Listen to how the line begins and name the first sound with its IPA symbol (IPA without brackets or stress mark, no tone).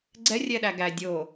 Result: ɡ͡ǀ